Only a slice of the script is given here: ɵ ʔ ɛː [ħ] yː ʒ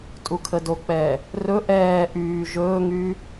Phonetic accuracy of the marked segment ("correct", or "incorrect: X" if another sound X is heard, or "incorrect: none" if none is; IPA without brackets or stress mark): incorrect: ʔ